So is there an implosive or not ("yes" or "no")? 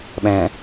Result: yes